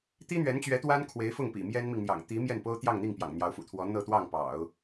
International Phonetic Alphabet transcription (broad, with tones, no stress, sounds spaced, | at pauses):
t̪ i˥ n̪ ɥ ɛ˧˥ n t͡ɕ ɥ ɛ˧˥ t̪ w a˥ n kʰ w e˧˥ ɪ̯ f ʊ˥˩ ŋ p ḭ˨˩ m j ɛ˥ n m i˨ ŋ n̪ j ɑ̰˨˩ ŋ t̪ i˧˥ m j ɛ˥˩ n p o˥ ʊ̯ t̪ j ɑ˥˧ ŋ n̪ i˥˩ ŋ p j ɑ̰˨˩ ŋ n̪ j ɑ˧˥ ʊ̯ f ṵ˨˩ t̪ʰ w ɔ˧˥ n̪ ɤ˥˧ t̪ w ɑ˥˩ ŋ p ɑ̰˨˩˦ ʊ̯